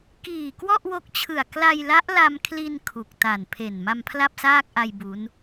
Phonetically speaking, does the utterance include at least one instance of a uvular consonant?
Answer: no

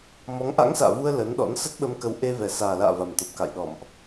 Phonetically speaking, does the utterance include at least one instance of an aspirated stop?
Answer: no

